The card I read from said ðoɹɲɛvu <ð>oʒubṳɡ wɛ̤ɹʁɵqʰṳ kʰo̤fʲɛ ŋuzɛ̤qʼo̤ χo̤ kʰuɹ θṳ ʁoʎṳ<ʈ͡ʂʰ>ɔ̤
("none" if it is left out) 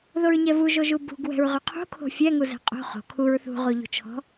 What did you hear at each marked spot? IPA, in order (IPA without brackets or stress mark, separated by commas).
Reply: ʒ, t͡ʃʰ